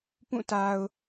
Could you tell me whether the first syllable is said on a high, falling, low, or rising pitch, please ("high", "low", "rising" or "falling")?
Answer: falling